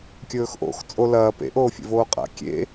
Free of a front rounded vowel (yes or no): yes